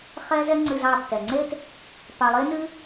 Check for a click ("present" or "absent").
present